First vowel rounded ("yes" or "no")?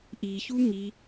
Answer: no